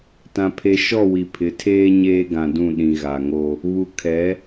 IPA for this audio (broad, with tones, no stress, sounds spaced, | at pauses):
t ã˨ pʰ e˨ ʃ ɔ˦˨ w i˨ pʰ ɪ˨˦ tʰ eː˦ ɲ eː˦ ɡ ã˨ d ũ˦˨ ɗ ĩ˨ ɣ a˨ ŋ o˦ | β u˨ kʰ ɛ˨˦